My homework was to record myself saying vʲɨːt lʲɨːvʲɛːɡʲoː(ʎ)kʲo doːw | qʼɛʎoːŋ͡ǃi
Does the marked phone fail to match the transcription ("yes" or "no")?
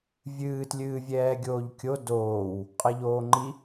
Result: no